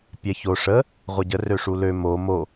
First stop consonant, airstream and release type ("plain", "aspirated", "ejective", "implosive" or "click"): plain